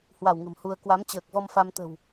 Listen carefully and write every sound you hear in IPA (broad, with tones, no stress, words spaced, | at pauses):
hwa˧˩wŋə̤˨˩m hu˧ə̯ kwa˨˦mt͡ɕəː˨˩k̚vɔ˧m fa˧mt̪ə̤˨˩w